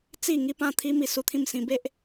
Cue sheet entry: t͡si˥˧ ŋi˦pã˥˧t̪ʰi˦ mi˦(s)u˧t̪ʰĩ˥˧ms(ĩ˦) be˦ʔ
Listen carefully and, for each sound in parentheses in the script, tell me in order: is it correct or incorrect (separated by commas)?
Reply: correct, incorrect